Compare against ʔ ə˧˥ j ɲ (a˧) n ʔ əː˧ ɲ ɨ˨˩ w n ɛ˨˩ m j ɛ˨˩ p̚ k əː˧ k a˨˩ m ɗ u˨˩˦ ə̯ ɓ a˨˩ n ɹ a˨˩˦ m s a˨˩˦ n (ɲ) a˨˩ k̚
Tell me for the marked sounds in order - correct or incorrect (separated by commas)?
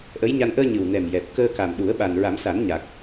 correct, correct